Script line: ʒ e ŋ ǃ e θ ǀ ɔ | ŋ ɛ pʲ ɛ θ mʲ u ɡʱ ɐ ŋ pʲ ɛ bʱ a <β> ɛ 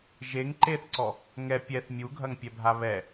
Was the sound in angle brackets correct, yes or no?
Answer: yes